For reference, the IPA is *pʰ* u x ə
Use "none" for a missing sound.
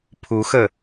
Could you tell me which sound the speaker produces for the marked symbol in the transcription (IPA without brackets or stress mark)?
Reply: pʰ